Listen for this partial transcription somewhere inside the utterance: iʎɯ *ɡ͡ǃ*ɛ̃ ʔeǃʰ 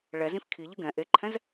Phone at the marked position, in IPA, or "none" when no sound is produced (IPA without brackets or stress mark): ɡ